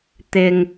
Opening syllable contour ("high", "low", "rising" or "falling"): low